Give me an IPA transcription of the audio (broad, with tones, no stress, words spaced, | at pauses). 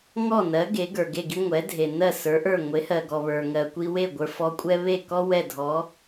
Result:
ŋɔ˥˩nɜ˩˥ ɡe˩˥ɡə˞˩ɡe˥˩ɡi˥ ŋʷɛ˩˥dʱe˩ nɜ˥˩sə˞˩˥ʔə˞˥˩ ŋʷe˩˥hɜ˩ɡɔ˩ βə˞˩ŋɜ˩ kʷi˧we˥˩ ɡʷə˞˧fɔ˧kʷʼɛ˥ βe˥˩kɔ˥ wɛ˥˩dʱɔ˩˥